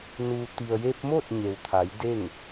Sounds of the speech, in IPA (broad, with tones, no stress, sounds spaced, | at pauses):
n u˩ t̪ i˩ ə̯ j e˧ p̚ m o˥˨ t̚ ɲ e˩ w t̪ʰ a˩˧ j d e˥˨ ŋ